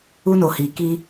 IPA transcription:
u˦ n o˨ h i˨ k iː˦

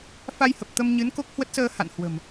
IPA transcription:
f a˧ j h ə˨˩ p̚ t̪ ə˧ m ɲ ɨ˨˦ n k o˦˥ k̚ h w ə˦˥ t̚ s əː˧ h a̰˧˨ n h w ə̤˨˩ m

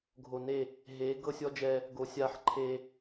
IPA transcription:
ɡʱ o˨ n e˦˨ | ɦ e˨˦ ɡ ɤ˦ sʲ ɔ˦ d͡ʒ ɛ˦ | ɡ o˨ sʲ a˦˨ ħ ǃʰ e˦

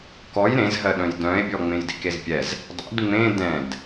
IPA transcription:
k ɔ j ɾ ẽ z ɦ ɜ ɗ œ̃ j d œ̃ e̯ bʲ ɔ ŋ͡m ẽ j d ḭ k e z pʲ ɛ z | dˤ ḭ d ŋ͡m ẽ d ɛ̃ d

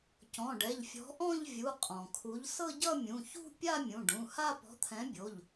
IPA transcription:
c ɔ̃˩˧˩ ɖ ɛ˩˧˩ ʎ fʲ ɔ̤˨˥ ʔ ɔ̃˥˧ ʎ vʲ u˩˧˩ qʼ ɔ̃˩ kʰ u˨˥ ʎ s ɤ˥˧ ɟ ʌ˥˧ mʲ ũ˩˧˩ ç ṳ˥˧ pʲ a˥˧ mʲ ũ˩˧˩ ɖ ũ˩˧˩ h a˥˧ p ɔ̤˨˥ t̪ʰ ɛ̃˨˥ bʲ o˩˧˩ ʎ

